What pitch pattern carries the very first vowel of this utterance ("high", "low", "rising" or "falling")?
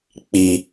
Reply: low